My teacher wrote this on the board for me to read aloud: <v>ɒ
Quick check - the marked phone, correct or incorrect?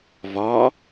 correct